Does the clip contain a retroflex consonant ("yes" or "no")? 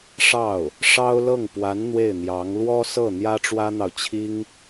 yes